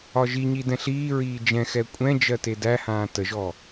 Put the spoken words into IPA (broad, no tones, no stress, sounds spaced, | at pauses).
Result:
ɒ ʒ i ɲ i d ɛ̃ ɬ iː ɹ iː d͡ʒ ɛ̃ x ɛ kʷʼ ɛ̃ d͡ʒ ɜ t e d æ h ãː t ə ʒ ɔ